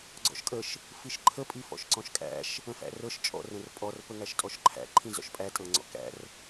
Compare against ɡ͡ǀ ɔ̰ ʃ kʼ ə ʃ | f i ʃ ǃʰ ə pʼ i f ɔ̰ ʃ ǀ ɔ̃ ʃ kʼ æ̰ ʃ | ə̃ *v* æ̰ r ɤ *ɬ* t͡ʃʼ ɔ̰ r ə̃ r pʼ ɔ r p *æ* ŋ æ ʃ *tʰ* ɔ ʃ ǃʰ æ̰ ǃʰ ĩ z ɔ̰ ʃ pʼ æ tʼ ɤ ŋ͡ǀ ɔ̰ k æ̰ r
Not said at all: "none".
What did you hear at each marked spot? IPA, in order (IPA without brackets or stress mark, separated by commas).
f, ʃ, ə, tʼ